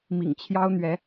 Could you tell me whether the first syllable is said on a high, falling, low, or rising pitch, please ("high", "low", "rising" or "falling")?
low